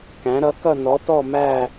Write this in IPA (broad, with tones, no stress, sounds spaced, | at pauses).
k æ̃˩˥ ɾ ʌ˩˥ k ʌ˥˨ n ɔ˩˥ t ɔ˥˨ m æ˥˨